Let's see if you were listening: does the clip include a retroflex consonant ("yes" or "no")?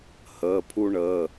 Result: yes